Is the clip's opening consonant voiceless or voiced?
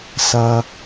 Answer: voiceless